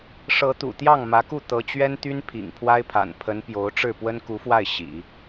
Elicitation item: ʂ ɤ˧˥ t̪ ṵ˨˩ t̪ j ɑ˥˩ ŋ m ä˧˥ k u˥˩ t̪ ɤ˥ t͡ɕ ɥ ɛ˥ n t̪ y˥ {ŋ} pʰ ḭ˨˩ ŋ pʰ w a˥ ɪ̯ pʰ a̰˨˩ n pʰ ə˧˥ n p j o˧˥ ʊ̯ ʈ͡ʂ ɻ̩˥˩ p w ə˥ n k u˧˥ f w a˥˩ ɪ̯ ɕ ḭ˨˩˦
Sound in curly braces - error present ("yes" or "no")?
yes